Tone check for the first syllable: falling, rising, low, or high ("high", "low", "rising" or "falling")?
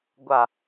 low